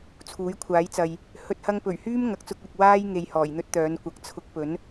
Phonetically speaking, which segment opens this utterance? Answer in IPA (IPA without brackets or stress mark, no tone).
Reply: t͡sʰ